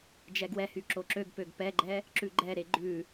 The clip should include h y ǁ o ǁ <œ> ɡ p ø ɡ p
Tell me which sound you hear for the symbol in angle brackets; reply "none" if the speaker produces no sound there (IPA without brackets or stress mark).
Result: ø